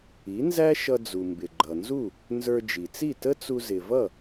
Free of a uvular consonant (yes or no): yes